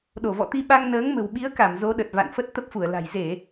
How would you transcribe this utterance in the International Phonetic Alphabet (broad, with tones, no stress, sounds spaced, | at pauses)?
ɗ o˧˩ v ɔ̰˧˨ t̪ i˧ ɓ a˧ ŋ n əː˨˦ ŋ m ə̤˨˩ w ɓ i˨˦ ə̯ k a˧˩ m z o˨˦ ɗ ə˨˩ t̚ v a̰˧˨ n f ə˦˥ t̚ t̪ ə˦˥ p̚ f u˧˩ ə̯ l a̤˨˩ j z e˧˩˨